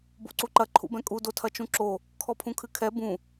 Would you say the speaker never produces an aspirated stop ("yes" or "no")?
no